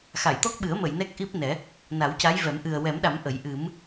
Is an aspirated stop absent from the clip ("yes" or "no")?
yes